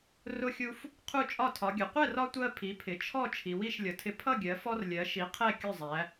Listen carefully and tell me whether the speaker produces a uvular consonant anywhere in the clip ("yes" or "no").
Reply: yes